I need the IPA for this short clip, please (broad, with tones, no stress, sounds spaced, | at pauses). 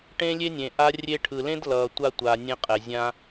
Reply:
ʈ ẽ˥ lʲ e˥ nʲ ẽ˩ ʔ a˧ rʲ e˧ ʈʰ ɯ˩ l ẽ˥ d l ʌː˩ tʷ a˧ tʷ aː˩ nʲ ẽ˧ qʼ ɛ˩ zʲ ã˧